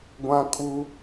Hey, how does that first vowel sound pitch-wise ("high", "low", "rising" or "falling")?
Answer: high